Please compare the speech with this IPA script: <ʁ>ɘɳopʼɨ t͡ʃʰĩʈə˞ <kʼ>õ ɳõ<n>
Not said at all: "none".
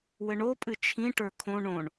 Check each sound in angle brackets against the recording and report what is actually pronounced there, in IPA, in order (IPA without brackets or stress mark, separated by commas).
w, kʰ, ɳ